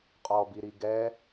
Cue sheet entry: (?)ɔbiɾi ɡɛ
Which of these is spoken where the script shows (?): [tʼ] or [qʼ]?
qʼ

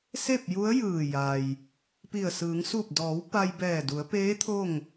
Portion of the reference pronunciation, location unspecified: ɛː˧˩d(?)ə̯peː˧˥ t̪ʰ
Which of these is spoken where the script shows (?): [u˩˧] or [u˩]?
u˩˧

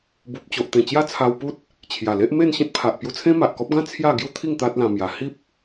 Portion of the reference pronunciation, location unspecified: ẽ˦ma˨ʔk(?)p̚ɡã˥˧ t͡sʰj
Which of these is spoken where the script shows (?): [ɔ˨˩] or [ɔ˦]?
ɔ˦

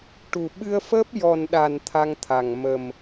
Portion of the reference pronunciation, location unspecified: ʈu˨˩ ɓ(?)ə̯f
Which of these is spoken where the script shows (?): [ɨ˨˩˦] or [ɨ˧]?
ɨ˧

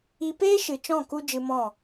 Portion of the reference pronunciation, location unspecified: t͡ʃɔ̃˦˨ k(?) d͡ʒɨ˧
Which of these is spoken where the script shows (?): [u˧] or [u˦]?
u˧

